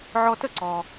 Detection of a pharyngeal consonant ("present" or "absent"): present